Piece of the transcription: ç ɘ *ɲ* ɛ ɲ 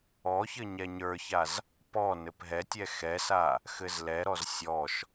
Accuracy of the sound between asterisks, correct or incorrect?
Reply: correct